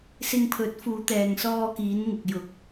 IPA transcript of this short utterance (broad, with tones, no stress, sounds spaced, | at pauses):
s ɪ˧ ŋ pʰ ɵ˨˥ t̚ f uː˨˧ t̪ ɛː˨ ŋ s ɔː˧ k iː˨˧ n ŋ ɪ˨ k̚ j ʊ˨˥ k̚